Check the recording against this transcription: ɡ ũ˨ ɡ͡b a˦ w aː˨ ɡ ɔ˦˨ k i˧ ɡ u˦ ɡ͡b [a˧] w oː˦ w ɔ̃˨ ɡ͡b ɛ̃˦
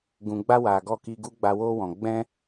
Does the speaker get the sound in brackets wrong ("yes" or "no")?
no